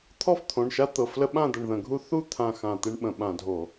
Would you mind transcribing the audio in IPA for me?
t̪ʰ ɔ˥˨ f t̪ʰ õ˩˧˩ ɳ ʃ a˦ t̪ ɤ˩˧˩ f l ə˦ ɓ ã˥˨ d̪ ə˧˩ ɳ ð ə̃˧˩˧ ɡʱ u˦ θ u˥˨ t̪ʰ ã˧˩ x ã˧˩ t̪ e˦ ɳ ɓ ə̃˧˩˧ ɓ ã˧˩˧ dʱ o˧˩˧

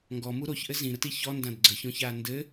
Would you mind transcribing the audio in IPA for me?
ŋ ɡ ɔ m u ɾ o ç ʔ ɘ z ĩ ɾ ə t i ç ɔ n d ã d ɡ͡ǀ ə ç õ ç aː n d ɘ

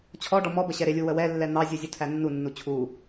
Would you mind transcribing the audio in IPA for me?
t͡ɕʰ ɔ ɖ ɔ m ɔ b ə ɕ ɛ ɾ ɪ lʲ u w ə w ɛ lː ɛ n̪ ɑ zʲ u zʲ u tʰ æ nː u nː u t͡ɕʰ u

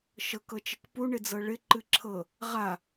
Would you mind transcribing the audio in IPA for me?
ʃ ɤ k ɤ t͡ʃ ɘ k p u ɳ ɪ d͡z ɤ ɭ ɪ ǃ ɨ ǁʰ ɤ | ʁ a

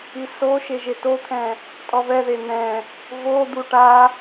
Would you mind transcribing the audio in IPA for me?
i s o ʃ e ʒ e t o t̪ʰ ɛ̃ | tʼ ɔ v ɛ ð e n̪ ɛ̃ | v o d̪ u ʈ a

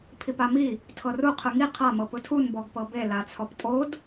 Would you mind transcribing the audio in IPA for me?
pʰ i p a m i | tʰ ɤ r u qʰ ɯ ŋ i qʰ a m ɤ p ɯ tʰ u n b ɔ ɡ p ɤ b e l a t͡sʰ ɔ p tʼ o d

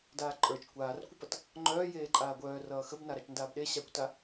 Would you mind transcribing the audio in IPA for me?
d aː ǃʼ ə˞ t͡ʃ kʷ aː r kʷ ə p ʌ t | ŋ͡ǃ œː j eː ǃʼ aː ɡʷ œː r ʌː x ə b n a ɾ a t͡ʃ n d aː b ɗ e ɕ a kʷ t a

